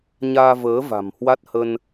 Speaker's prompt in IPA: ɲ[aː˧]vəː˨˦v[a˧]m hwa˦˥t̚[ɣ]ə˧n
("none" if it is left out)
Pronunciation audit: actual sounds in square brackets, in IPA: aː˧, a̤˨˩, h

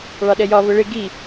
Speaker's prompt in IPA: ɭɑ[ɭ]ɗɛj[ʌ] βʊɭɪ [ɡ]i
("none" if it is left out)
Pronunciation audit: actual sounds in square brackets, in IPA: none, ɒ, ɡ

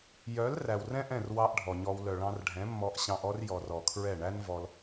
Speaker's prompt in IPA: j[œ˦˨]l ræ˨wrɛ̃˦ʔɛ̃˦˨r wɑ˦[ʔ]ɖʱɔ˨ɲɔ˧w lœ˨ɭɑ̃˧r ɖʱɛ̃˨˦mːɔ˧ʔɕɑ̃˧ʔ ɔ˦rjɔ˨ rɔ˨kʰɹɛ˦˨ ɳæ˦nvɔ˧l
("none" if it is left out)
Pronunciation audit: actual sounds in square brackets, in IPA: œ˨˦, ʔ

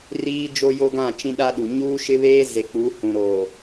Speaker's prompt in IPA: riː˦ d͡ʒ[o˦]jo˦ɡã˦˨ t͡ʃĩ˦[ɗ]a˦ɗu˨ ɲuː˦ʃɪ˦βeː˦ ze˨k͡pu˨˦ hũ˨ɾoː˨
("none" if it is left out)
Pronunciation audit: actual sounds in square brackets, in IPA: o˦, ɗ

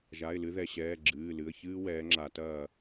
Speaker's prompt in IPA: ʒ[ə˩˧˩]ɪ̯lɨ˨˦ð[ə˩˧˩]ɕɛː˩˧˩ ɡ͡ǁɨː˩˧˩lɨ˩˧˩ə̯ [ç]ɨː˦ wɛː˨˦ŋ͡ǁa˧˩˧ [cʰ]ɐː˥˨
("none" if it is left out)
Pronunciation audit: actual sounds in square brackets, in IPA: a˩˧˩, ɛ˩˧˩, ç, t

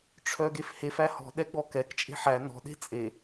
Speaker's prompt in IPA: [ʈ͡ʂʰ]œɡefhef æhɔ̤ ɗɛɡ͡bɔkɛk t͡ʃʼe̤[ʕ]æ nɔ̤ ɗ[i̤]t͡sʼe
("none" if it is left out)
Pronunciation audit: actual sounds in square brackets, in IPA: ʈ͡ʂʰ, ħ, e̤

